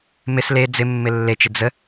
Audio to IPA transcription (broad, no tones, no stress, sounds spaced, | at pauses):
m ɪ s l e d͡z ɪ mː ɪ lː e t͡ʃ ɪ d͡z ə